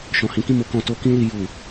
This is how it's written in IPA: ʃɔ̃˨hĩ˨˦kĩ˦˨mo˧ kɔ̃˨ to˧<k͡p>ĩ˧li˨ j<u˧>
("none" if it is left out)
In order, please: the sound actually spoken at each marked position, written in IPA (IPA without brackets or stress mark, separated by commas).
k, u˨